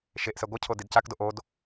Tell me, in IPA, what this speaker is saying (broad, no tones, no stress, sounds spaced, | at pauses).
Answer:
ʃ e ʔ s ɛ ɡʷ ʌ cʰ o d i d c a k d o ʔ o d